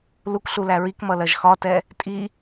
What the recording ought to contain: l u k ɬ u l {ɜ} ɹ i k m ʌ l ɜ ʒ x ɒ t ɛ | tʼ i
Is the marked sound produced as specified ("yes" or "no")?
no